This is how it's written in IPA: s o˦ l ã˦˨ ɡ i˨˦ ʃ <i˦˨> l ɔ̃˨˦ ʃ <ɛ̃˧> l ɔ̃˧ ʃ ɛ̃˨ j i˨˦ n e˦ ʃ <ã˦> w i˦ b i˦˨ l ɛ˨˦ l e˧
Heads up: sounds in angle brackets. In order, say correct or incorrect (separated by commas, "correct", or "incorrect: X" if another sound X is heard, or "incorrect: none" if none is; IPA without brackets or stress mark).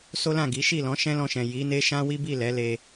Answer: correct, incorrect: ɛ̃˦, correct